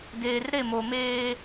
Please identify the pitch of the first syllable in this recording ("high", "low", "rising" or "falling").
low